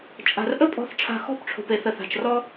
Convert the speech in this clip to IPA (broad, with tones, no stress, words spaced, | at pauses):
t͡ʃʼa̤˨r ʔə˦pʼɔ̤˧θ ʈ͡ʂʰa̤˧ xɔ̤˦˨pʈ͡ʂʰo̤˨pe˨θə˨ θa̤˨t͡ʃrɔ˦